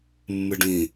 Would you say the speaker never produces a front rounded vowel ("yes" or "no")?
yes